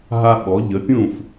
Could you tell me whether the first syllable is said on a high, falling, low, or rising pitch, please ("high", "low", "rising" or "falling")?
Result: high